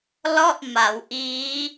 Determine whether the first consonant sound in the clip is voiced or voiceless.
voiced